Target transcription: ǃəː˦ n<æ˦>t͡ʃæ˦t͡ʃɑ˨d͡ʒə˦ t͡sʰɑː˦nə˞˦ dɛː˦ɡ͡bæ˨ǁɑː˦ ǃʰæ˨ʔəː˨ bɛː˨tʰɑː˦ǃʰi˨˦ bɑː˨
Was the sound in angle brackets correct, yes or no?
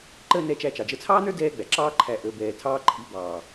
no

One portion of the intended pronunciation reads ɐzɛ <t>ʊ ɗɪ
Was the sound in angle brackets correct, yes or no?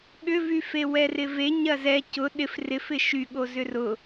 no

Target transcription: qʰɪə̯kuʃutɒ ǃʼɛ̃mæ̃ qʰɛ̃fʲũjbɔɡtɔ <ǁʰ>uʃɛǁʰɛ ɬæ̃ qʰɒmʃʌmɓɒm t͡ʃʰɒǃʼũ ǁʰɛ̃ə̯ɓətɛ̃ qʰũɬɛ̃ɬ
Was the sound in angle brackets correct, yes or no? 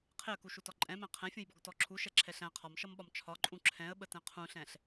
yes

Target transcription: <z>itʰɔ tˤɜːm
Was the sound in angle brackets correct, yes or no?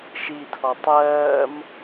no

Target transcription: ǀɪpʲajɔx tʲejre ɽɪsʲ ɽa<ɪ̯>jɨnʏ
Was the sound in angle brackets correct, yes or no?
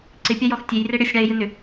yes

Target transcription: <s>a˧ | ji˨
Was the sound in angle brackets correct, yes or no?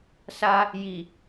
yes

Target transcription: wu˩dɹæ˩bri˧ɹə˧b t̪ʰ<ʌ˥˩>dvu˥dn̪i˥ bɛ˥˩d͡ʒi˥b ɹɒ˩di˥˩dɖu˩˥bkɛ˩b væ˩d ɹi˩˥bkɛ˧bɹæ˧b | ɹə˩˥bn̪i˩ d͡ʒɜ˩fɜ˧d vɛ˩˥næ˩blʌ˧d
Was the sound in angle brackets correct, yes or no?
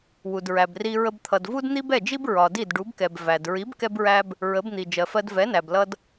no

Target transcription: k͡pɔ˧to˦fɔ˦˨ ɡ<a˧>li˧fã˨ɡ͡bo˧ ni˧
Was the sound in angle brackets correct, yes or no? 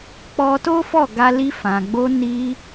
yes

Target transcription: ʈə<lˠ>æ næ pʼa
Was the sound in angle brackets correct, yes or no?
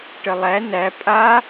yes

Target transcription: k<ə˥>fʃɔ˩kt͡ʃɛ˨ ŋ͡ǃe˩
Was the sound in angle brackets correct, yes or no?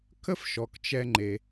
yes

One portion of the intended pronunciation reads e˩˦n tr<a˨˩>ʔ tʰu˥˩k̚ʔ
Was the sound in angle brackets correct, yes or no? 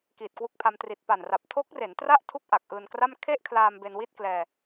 no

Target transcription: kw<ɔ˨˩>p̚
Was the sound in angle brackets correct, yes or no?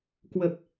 no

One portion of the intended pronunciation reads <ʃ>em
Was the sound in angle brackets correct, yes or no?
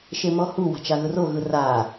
yes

